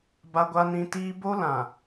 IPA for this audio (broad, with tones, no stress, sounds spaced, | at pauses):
b a˦ ɡʷ a˦ n ĩ˦ t iː˦ b o˦ l ã˨